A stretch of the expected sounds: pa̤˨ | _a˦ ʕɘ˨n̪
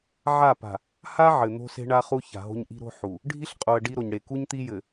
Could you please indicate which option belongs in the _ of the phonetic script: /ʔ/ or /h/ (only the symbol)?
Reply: h